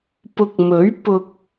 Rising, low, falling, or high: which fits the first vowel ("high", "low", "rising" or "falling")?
low